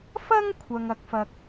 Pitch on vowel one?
high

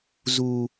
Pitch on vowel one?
high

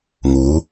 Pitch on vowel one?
rising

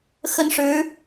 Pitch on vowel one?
high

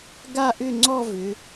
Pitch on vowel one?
falling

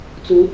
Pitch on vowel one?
rising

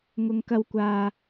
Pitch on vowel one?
low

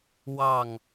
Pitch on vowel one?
falling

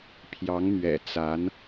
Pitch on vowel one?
rising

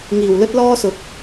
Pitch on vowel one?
low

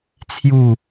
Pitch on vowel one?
falling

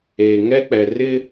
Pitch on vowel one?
low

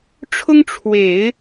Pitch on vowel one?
high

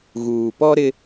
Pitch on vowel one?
low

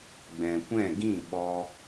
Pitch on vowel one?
low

